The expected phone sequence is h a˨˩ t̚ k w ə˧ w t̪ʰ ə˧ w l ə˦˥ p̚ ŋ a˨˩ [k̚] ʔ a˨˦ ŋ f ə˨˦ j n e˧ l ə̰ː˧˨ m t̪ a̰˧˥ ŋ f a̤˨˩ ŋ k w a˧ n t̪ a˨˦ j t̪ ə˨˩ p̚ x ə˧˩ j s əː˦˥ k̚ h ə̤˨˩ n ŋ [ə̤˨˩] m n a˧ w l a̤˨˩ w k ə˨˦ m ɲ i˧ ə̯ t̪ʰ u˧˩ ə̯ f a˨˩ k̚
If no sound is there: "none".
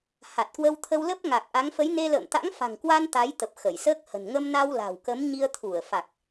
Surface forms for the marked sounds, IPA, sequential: k̚, ə˧

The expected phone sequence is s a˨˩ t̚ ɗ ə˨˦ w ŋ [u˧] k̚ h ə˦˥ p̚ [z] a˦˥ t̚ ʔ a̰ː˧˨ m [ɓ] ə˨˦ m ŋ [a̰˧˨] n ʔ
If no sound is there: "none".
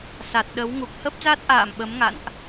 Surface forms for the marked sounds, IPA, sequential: u˨˩, z, ɓ, a̰˧˨

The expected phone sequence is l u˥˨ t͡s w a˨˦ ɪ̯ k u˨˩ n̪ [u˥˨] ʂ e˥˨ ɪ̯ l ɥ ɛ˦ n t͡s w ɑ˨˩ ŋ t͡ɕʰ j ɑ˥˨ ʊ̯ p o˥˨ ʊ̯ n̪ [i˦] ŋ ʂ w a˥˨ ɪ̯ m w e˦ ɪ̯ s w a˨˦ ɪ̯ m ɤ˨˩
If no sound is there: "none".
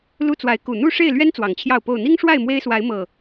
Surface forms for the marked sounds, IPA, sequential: u˥˨, i˦

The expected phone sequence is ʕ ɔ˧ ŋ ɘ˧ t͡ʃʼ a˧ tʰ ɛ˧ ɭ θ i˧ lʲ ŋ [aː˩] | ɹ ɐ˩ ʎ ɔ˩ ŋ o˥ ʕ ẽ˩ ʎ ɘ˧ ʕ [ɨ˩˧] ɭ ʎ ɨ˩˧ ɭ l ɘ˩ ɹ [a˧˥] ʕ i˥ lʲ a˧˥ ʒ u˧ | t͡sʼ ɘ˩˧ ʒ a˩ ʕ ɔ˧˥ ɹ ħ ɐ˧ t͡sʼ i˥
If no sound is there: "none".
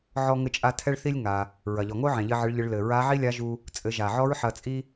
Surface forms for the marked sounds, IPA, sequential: a˩, ɨ˩˧, a˧˥

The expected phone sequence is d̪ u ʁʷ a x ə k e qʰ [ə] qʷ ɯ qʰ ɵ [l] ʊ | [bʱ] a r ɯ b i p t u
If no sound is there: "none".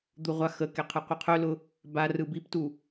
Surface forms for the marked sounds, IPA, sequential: ɯ, l, b

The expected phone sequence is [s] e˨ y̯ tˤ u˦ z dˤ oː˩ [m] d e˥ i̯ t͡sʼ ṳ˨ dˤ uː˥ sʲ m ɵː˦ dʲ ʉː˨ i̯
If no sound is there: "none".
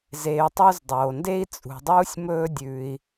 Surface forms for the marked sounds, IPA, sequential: z, n

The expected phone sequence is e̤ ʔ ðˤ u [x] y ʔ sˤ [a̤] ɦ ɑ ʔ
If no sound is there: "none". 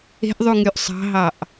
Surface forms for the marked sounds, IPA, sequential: ŋ, ɑ̤

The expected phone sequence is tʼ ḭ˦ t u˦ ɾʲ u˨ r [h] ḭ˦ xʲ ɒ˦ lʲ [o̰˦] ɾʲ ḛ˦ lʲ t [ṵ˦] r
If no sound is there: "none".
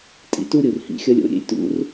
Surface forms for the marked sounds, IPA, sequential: h, o̰˦, ṵ˦

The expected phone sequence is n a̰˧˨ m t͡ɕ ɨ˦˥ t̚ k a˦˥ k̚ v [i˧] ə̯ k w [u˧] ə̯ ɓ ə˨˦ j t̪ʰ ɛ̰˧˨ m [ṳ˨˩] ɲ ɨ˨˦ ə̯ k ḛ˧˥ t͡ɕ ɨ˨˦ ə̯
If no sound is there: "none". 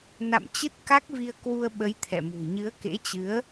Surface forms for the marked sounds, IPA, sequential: i˧, u˧, ṳ˨˩

